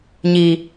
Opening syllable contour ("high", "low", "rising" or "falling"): low